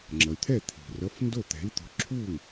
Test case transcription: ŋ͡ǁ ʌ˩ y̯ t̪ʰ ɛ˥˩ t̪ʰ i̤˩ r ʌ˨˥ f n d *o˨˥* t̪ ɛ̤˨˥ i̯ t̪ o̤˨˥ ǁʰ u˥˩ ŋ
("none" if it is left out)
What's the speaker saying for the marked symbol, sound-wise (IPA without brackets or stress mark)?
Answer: o˥˩